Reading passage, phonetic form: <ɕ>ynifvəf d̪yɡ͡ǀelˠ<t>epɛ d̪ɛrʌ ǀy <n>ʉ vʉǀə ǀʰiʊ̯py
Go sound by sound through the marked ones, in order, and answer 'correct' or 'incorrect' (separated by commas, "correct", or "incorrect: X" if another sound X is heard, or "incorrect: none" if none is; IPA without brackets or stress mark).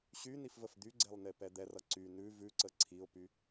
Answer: correct, incorrect: n, correct